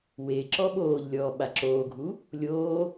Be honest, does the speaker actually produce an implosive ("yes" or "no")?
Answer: yes